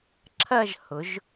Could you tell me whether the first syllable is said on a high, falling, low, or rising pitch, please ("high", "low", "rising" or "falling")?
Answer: falling